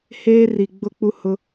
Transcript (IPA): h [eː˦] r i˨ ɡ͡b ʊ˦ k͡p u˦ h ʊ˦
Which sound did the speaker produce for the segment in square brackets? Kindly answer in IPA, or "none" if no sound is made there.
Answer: eː˦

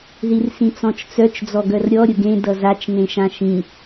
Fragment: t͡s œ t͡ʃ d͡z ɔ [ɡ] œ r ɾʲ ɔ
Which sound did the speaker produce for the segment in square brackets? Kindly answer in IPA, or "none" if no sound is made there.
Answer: ɡ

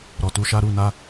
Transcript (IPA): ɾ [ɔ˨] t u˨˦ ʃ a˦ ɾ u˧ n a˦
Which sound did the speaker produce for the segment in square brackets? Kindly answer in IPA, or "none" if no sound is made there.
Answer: ɔ˨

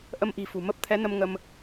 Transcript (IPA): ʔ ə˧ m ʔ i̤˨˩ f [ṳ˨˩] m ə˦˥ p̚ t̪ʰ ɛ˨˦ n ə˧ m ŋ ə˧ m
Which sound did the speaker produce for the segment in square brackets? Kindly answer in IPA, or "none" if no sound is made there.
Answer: ṳ˨˩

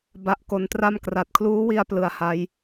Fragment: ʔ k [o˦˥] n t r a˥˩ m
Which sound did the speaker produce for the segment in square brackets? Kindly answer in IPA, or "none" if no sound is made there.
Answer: o˦˥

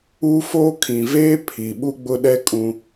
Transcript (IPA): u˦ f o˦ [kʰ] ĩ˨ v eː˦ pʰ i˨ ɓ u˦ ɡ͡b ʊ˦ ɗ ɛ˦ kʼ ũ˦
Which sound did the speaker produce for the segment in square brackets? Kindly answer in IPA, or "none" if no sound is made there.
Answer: kʰ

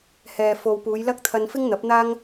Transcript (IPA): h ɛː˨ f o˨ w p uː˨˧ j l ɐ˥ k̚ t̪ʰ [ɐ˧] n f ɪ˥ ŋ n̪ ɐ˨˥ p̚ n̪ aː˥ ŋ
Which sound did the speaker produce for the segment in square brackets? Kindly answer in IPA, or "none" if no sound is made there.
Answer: ɐ˧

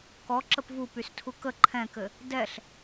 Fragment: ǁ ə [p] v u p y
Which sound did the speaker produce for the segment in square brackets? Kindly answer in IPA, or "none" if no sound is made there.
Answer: p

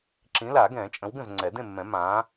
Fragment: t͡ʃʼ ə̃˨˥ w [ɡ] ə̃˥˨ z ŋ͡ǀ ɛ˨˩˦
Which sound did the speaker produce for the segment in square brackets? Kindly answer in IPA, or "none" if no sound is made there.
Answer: ɡ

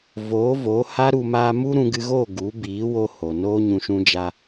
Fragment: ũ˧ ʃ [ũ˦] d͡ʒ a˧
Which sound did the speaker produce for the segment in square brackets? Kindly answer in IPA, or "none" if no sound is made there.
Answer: ũ˦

